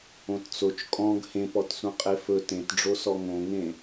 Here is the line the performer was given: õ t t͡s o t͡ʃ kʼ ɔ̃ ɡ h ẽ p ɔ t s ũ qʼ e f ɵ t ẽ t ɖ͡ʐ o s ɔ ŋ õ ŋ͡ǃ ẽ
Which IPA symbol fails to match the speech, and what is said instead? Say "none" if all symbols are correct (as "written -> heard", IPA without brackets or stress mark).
ŋ͡ǃ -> ŋ